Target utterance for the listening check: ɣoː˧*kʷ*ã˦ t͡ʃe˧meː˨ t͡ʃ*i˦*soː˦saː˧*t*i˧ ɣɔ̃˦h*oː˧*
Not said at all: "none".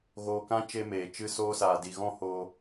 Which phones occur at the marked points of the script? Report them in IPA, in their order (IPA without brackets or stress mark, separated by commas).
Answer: k, ɨ˦, d, oː˧